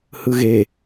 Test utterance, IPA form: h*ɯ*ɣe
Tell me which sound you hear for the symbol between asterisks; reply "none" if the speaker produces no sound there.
ɯ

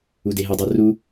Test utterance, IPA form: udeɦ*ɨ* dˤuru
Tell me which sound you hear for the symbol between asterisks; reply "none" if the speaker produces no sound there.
ɨ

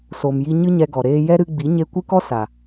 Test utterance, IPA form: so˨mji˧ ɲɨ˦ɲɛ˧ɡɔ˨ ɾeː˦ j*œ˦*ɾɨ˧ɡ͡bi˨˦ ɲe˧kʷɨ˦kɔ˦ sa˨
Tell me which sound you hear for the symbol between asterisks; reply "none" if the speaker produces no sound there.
ɛ˦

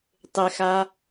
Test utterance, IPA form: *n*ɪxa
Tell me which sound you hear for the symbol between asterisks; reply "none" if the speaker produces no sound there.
tˤ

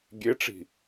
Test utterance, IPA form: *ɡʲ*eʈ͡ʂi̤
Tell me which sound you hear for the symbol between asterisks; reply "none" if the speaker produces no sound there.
ɡʲ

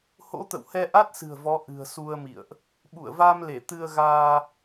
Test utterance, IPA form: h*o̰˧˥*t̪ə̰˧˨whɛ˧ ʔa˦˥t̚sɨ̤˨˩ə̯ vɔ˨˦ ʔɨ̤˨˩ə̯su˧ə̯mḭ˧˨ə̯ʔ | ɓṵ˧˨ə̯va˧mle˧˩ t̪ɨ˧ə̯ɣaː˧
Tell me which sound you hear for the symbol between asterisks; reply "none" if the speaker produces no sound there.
o̰˧˥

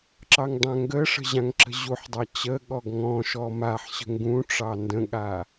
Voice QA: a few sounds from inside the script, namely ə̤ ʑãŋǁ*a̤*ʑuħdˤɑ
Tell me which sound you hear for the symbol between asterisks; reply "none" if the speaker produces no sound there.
ə̤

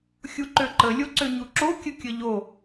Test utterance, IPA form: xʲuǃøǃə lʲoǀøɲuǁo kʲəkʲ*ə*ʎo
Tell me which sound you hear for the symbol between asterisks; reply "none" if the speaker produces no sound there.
ə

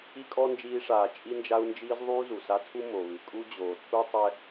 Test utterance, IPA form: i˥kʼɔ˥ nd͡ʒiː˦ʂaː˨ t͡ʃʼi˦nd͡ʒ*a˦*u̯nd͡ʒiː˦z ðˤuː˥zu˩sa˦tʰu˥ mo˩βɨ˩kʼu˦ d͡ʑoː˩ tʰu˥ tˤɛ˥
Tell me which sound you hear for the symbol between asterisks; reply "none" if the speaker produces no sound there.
a˦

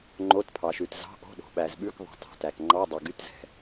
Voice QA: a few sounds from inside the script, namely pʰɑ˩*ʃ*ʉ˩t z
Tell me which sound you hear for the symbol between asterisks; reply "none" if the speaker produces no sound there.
ʃ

